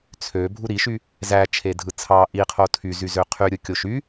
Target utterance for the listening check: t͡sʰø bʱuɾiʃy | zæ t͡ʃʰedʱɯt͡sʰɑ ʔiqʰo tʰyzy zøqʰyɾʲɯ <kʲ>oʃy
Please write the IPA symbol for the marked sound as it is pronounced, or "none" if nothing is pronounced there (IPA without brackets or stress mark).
kʲ